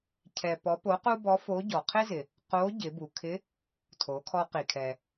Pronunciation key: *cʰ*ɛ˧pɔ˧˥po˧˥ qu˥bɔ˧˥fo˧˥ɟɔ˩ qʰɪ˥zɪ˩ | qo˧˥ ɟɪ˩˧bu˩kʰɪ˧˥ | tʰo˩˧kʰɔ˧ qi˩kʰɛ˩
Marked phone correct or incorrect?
correct